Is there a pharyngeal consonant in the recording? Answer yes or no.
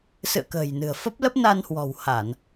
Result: no